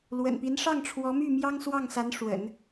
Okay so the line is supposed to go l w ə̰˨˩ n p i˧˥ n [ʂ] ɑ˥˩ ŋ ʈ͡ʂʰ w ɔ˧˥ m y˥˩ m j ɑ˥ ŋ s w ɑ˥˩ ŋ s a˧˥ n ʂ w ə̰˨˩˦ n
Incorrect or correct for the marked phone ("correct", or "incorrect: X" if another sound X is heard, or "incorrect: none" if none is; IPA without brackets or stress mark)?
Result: correct